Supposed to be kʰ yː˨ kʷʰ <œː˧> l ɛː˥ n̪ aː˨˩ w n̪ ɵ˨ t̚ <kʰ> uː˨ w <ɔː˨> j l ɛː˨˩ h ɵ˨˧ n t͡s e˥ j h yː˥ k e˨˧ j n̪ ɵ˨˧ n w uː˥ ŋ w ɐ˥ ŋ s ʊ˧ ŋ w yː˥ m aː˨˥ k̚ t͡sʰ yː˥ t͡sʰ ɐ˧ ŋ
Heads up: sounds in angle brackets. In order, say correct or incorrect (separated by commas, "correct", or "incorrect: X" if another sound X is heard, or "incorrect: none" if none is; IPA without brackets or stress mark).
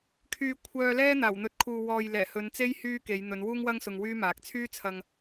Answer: correct, correct, correct